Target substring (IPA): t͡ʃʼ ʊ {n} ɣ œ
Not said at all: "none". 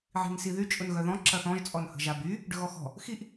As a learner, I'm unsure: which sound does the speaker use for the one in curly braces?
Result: n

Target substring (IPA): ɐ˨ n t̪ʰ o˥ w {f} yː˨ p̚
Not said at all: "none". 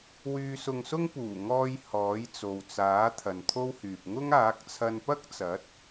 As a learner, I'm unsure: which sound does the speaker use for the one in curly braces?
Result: h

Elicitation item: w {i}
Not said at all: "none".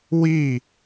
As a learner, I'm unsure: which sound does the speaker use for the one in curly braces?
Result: i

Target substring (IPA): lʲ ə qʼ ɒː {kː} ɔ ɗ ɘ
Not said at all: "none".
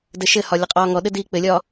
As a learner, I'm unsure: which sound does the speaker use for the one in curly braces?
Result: ŋ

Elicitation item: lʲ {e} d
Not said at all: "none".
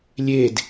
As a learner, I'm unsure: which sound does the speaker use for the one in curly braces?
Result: e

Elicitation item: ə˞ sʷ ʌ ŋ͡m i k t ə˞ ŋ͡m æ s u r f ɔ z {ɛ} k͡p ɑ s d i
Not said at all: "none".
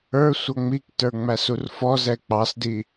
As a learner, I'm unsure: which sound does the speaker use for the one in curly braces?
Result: ɛ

